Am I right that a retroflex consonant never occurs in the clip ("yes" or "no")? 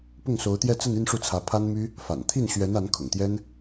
no